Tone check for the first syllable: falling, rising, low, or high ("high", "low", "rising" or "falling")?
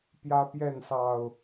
high